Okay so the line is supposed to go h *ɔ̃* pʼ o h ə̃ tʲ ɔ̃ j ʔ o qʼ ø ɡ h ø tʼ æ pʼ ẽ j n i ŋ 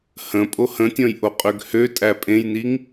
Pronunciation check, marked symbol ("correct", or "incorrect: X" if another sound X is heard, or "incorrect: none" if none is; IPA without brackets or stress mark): incorrect: ə̃